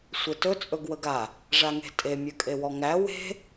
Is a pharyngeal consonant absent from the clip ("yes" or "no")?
yes